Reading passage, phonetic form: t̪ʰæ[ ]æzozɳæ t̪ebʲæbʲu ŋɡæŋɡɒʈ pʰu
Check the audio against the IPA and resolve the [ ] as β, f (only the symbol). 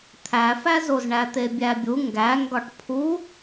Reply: f